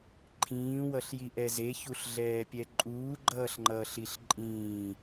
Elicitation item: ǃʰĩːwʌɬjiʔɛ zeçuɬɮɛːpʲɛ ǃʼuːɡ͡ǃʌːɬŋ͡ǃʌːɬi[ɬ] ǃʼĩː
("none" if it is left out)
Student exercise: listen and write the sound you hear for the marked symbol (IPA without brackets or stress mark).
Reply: ɬ